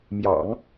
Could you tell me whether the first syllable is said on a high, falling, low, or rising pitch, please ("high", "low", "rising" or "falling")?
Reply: low